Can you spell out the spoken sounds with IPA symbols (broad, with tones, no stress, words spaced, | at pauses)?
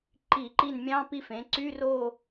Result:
ǃi˧˩˧ǃi˦˨n mʲɑ̃˧˥˧pi˦˨fẽ˩˧ǀy˧˥˧ ro˦˨